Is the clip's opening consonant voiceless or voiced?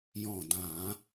voiced